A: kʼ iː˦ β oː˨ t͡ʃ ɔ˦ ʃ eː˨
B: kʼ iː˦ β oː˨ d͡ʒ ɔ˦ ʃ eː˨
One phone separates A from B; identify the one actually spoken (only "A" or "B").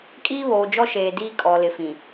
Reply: B